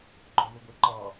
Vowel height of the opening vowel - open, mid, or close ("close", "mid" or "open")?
mid